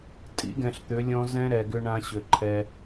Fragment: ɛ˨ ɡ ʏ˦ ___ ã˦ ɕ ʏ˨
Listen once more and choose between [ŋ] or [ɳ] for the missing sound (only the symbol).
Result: ɳ